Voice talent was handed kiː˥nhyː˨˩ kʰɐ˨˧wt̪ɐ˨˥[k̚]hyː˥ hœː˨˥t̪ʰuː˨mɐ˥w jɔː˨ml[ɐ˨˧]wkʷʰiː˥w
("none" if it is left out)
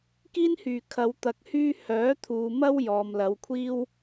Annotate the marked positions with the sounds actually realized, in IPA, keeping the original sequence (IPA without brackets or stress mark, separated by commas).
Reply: k̚, ɐ˨˧